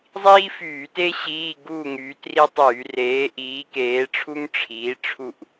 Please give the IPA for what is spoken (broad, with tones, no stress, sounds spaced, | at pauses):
zˤ iː˥ f yː˧˩˧ t e˥ ɕ iː˧˥˧ ɡ uː˥˨ ŋ yː˨˥ t r i˥ tˤ yː˧˩˧ r eː˨˥ ʔ iː˨˥ k eː˨˥ ʈ͡ʂʰ u˥ ŋ ʈ͡ʂʰ iː˨˥ ʈ͡ʂʰ u˥˨ ʔ